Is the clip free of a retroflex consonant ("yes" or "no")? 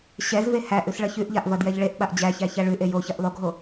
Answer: no